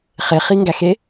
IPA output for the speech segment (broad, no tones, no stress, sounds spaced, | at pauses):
χ e χ i ŋ ɡ æ x e